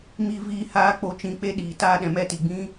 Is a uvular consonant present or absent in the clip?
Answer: absent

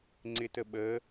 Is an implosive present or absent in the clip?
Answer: present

